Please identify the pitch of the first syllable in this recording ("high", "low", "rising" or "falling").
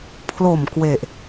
low